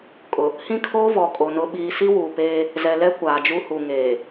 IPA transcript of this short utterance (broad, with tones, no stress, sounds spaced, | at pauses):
kʼ ʊ˨ | h ĩ˦ kʰ oː˦ v ɔ˨ kʼ o˨ n ʊ˨ ɓ iː˨ s i˦ w uː˨ p eː˦ | z ɛ˨ l ɛ˦ kʷ aː˨ d͡ʒ u˦ h u˨ ŋ eː˨